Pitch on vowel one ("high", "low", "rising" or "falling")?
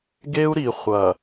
high